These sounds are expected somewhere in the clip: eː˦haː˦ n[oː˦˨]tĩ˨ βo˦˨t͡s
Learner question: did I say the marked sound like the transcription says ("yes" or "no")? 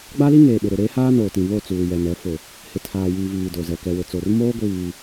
no